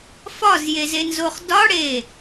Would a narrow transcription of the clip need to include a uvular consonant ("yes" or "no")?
yes